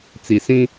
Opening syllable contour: low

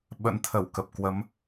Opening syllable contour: rising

